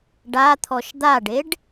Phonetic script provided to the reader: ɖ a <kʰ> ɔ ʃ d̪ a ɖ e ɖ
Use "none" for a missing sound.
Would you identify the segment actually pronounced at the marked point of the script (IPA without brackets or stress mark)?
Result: t̪ʰ